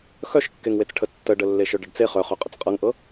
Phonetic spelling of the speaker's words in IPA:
xœʃkːeŋwet͡sʈʰə tːəɖə lːeʃœɖəɖt͡se χœχœ qʼət͡sqʼɤŋʔɤ

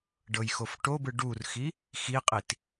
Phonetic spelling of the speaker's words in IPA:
ɖɤjxofʈobɯ ɖurxi | xiqʼit

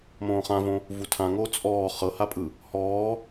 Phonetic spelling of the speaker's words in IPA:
mõːχãvõ | vutʰãŋoː t͡sʼɔː χɤhapʼɯ | hɔː

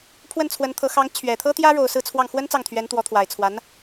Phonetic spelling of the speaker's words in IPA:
pʰwə˥˩nt͡sʰwə˧˥nt̪ʰɤ˧˥ xɑ˧˥ŋt͡ɕʰɥɛ˨˩t̪ʰɤ˥t̪jä˥ ɻo˨˩ʊ̯ sɹ̩˥˧t͡sʰwɑ˥˩ŋ xwə˥n t͡sɑ˥˩ŋt̪ʰɥɛ˧˥nt̪wɔ˧˥t̪ʰwa˨˩ɪ̯ t͡sʰwa˧˥n

